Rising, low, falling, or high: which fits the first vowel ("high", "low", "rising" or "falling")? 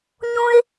high